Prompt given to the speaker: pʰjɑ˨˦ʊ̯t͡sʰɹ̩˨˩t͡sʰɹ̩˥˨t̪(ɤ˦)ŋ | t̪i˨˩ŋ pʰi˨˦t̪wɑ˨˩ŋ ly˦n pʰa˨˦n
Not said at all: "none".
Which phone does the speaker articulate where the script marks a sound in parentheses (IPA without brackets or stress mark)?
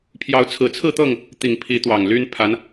ɤ˥˨